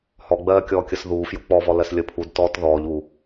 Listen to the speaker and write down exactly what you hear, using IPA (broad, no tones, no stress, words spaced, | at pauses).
hɔɡ͡bɜː kʲɔːkʲəsðuː fjuk͡pɔvɔ lɜslʲəpʰudtɔːt ðɔːʎuː